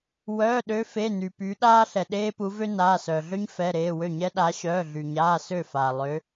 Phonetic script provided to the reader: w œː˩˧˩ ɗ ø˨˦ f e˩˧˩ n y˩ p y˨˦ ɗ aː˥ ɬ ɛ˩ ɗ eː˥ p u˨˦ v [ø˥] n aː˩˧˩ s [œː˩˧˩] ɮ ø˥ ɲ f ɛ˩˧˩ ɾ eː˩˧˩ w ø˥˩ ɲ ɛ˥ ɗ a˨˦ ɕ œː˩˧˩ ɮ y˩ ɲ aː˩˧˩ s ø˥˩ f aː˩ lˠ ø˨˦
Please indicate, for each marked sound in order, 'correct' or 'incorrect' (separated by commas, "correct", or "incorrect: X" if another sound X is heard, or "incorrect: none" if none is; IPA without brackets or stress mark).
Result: correct, incorrect: œː˩